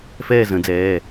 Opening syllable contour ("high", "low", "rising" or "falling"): falling